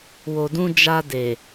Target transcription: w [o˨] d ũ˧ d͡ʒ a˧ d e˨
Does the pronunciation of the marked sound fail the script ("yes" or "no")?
no